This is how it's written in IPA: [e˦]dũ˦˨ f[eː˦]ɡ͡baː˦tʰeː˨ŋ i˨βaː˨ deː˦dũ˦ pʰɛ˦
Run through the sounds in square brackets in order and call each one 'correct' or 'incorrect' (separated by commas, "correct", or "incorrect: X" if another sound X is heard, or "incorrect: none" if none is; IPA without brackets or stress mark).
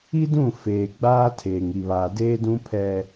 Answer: incorrect: i˦, incorrect: eː˨